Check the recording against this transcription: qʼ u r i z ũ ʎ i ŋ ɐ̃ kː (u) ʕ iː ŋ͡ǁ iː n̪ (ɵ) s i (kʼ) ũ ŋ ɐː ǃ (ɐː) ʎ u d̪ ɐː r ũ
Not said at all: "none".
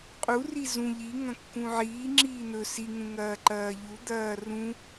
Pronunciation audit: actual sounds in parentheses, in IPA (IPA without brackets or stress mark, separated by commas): ũ, ɵ, ŋ, ɐː